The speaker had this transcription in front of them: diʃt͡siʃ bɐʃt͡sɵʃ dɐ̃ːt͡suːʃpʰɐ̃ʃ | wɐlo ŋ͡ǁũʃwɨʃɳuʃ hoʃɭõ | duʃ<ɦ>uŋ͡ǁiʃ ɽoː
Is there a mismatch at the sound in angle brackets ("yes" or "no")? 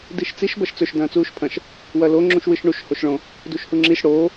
yes